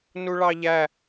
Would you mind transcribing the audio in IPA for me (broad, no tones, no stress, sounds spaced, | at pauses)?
n u ɭ ɑ ʎ æ